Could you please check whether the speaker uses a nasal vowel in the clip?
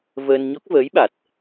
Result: no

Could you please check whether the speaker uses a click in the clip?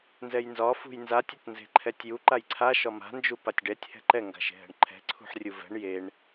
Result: yes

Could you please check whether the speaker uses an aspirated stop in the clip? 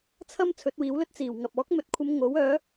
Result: yes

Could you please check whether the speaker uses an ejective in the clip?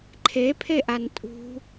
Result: yes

